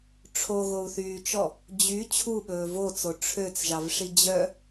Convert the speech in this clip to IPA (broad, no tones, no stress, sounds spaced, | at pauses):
ʈ͡ʂʰ o ɣ o u̯ θ yː t͡ʃ ɔ | d͡ʑ y t͡ɕʰ u ɓ ɵː v o t͡s o ʈ͡ʂʰ ø t͡s ʒ ɑ v ʂ i d͡ʑ œ